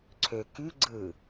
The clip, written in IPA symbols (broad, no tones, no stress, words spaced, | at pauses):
ǀʰø ky ɡ͡ǀɯ